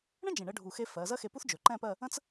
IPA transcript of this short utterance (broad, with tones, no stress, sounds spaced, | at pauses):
ɳ ə̃˥ d͡ʒ ẽ˧˩ ɳ ə˥ ɖʱ u˧˩ x e˥ f ɜ˩˧ z ɜ˥ x e˧ p u˥ θ d͡ʒ ɵ˩˧ ǃ ɛ̃˥˧ p ɜ˥˧ | ə̃˥ t͡s